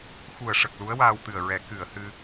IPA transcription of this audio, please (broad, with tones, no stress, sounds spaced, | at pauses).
x u˨˩ ə̯ ʂ ə˨˩ k̚ l u˧˥ ə̯ w aː˧ w t̪ ɨ˨˩ ə̯ ɹ ɛ˨˩˦ k ɨ˨˩˨ ə̯ h ɨ˧